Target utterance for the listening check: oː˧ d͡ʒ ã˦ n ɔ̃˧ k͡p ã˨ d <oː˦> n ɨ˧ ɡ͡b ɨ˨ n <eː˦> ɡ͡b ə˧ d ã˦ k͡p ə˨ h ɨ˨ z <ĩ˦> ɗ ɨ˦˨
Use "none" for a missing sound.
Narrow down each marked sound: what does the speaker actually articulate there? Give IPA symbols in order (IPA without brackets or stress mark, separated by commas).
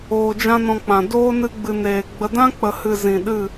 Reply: oː˦, eː˨, ĩ˨